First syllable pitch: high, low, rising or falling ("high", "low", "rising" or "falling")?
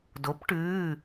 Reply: rising